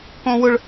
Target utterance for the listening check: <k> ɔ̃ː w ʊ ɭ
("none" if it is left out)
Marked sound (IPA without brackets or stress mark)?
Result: k